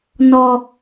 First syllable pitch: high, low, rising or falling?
high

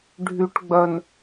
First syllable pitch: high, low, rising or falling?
low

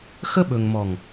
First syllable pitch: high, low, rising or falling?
high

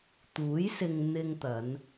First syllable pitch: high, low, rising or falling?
rising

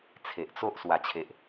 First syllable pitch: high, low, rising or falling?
low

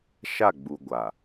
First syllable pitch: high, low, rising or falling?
falling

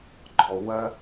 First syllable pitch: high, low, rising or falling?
low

